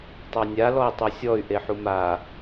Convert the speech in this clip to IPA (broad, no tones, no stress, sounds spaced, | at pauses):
tˤ a nʲ a l ɔ i̯ tˤ o sʲ ɔ y̯ ʔ e ħ u m a